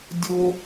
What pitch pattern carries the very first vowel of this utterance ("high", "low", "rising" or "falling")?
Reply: high